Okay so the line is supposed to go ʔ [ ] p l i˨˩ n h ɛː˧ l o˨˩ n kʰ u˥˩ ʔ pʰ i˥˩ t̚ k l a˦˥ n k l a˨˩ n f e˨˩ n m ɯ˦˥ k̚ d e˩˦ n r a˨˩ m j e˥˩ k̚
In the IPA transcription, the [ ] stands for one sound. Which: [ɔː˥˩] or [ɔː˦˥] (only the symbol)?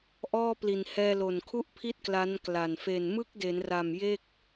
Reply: ɔː˥˩